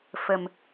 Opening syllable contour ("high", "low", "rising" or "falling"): low